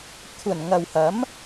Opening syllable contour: low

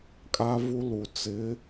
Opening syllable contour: high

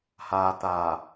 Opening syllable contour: low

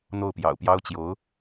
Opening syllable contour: falling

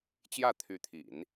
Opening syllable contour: falling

